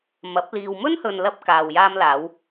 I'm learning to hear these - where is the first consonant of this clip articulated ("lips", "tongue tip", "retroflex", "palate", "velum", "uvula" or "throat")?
lips